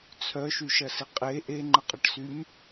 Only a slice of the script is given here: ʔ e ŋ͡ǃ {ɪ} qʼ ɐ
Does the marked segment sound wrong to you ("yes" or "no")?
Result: yes